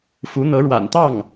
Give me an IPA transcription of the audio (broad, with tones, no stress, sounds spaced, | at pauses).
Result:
f u˧˥ n̪ ɤ˧˥ ɻ w a̰˨˩ n t̪ ɑ˥˩ ŋ